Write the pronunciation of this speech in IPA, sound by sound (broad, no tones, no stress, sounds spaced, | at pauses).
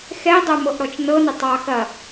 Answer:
x ɛ dˤ œ m ɤ ʔ ɾ ɔ t͡ʃ n ɤ n ə tˤ ɑ x ɐ